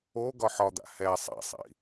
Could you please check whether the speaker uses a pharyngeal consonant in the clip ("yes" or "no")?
yes